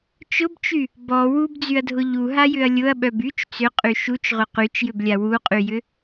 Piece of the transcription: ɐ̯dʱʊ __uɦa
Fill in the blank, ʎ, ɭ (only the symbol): ʎ